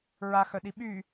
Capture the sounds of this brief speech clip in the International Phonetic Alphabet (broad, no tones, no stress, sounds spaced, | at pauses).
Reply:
ɹ a x œ ɗ i ɓ y